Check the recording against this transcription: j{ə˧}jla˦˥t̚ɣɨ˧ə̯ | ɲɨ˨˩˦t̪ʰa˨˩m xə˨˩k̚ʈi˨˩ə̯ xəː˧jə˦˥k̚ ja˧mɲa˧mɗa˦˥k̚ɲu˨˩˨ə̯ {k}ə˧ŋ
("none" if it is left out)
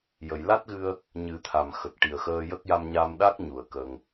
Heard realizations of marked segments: ə˨˩˨, k

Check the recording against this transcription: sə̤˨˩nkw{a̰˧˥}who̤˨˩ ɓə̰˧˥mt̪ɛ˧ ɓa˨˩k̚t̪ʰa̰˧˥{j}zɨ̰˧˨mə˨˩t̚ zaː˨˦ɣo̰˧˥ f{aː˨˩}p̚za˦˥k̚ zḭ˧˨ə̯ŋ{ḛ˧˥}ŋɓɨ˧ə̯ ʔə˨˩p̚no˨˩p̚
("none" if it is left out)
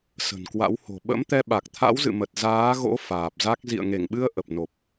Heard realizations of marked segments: a̰˧˥, w, aː˨˩, e˧˩

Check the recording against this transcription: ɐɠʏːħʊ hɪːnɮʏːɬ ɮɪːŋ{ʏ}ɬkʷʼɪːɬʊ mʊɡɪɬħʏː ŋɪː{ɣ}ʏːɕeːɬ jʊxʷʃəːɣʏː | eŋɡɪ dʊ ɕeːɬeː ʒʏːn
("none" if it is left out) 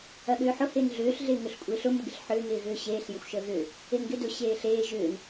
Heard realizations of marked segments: ʏ, ɣ

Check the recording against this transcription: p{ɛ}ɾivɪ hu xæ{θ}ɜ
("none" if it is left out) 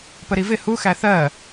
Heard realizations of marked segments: ə, θ

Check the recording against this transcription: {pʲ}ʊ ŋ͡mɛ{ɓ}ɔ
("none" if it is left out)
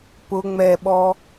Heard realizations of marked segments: p, ɓ

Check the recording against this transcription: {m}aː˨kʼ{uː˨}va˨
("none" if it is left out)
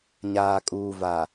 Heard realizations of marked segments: ɲ, uː˨

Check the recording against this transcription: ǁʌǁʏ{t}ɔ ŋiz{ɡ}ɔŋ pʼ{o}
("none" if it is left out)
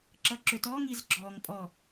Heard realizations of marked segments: t, ɡ͡ǁ, ɔ

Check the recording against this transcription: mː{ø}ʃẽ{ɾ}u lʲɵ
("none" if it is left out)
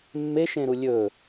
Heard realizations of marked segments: e, ɾ

